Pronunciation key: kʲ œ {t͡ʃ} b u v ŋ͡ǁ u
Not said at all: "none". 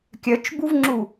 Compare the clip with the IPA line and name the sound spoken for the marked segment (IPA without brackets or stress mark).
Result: t͡ʃ